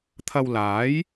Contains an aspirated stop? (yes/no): yes